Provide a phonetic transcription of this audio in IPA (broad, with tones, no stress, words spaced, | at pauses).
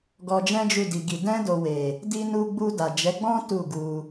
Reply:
ɡɔ˧d͡ʒɛ̃˦d͡ʒu˦˨ di˨ɡi˨ dɛ̃˧do˨we˨ | di˧ nu˧ɡ͡bu˧da˨ d͡ʒɛ˨˦ɡ͡bɔ̃˦ tu˦˨ɡu˧